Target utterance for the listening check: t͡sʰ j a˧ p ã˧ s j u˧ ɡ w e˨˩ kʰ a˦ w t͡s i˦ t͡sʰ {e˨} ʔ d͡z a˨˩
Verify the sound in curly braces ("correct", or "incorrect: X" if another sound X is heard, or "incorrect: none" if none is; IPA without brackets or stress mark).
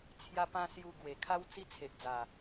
correct